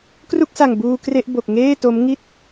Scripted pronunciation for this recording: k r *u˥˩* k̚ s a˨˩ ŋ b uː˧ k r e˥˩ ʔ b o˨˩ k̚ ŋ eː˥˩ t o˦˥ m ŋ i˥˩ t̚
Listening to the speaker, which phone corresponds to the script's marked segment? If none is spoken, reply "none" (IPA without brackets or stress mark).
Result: u˥˩